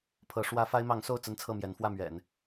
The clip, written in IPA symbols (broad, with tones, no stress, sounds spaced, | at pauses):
pʰ ɤ˧˥ ʂ w ä˥ f a˥ ɪ̯ m ɑ˧˥ ŋ s o˥˩ ʊ̯ t͡s ə˥ n t͡sʰ ɤ˥˩ m j ɛ˧˥ n f w ä˥˩ m ɥ ɛ̰˨˩˦ n